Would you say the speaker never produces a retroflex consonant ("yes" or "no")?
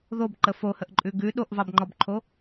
yes